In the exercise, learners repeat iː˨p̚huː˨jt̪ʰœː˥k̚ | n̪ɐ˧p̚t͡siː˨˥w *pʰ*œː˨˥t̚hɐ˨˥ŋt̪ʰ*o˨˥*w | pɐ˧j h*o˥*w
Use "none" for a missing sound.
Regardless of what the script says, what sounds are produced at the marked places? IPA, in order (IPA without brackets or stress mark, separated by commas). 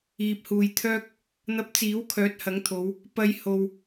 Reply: kʰ, o˨˧, o˧